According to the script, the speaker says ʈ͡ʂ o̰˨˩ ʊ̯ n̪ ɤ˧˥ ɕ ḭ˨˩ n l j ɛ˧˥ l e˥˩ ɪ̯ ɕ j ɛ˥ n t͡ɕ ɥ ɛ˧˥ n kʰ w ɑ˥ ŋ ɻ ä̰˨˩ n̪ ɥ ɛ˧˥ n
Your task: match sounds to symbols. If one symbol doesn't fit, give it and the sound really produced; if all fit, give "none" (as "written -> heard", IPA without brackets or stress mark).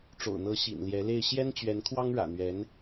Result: none